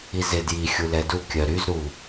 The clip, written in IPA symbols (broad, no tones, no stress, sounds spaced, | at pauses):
i z ɪ d j i xʲ u l ɛ d u kʲ œ ɾ y z ɾ u